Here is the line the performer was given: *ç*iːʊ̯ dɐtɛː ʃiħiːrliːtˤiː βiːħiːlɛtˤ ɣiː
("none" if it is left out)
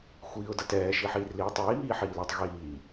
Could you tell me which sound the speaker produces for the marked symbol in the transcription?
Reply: xʷ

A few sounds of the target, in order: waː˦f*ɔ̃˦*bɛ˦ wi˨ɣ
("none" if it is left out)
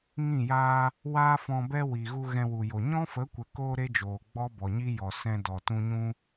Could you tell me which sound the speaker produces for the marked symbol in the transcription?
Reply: ɔ̃˧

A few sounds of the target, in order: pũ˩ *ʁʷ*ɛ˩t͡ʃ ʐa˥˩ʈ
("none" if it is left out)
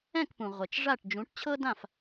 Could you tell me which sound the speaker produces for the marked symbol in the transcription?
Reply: ʁʷ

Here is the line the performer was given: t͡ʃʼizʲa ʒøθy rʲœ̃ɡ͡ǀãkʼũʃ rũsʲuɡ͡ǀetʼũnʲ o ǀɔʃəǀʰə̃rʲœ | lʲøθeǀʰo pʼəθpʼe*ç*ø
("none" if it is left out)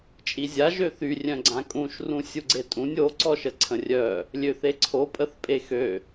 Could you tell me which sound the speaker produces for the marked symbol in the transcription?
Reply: x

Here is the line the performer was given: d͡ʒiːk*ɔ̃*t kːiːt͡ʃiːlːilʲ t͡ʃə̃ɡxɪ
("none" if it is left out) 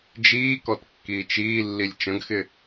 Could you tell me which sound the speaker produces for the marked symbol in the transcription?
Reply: ɔ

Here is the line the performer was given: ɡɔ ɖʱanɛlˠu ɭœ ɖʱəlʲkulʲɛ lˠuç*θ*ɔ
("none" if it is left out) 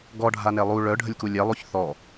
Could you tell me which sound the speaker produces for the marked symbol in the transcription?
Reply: θ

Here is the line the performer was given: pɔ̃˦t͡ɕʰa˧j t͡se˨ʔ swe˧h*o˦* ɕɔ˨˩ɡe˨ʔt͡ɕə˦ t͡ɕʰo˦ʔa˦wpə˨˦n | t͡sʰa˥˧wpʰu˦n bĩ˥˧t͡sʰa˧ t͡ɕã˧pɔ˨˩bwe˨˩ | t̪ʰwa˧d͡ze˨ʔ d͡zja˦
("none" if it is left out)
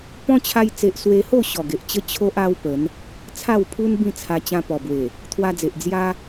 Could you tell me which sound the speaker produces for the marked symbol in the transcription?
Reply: o˥˧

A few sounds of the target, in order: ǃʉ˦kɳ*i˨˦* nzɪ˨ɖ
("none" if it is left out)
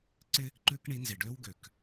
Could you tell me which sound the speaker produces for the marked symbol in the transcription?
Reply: i˨˦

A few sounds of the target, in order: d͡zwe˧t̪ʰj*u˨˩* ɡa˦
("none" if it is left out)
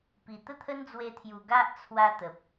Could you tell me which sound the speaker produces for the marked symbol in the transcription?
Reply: u˨˩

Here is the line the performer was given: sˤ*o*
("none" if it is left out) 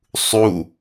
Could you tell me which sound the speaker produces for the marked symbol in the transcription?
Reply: u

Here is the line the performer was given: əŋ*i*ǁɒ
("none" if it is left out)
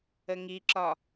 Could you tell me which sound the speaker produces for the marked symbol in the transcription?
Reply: i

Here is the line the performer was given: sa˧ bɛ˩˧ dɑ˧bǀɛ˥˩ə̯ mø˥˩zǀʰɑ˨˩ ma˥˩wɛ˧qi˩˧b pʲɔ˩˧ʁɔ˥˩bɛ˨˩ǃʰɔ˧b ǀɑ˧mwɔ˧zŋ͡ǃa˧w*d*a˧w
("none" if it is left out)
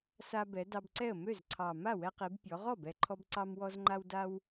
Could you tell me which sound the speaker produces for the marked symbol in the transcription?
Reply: d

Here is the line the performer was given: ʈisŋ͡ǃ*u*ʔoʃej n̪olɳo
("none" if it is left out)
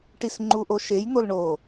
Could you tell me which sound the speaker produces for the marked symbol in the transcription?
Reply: u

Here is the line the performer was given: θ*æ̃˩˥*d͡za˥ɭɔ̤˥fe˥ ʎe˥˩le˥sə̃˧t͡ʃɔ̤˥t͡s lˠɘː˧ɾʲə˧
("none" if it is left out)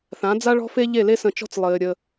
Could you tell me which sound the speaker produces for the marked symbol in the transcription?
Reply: ã˩˥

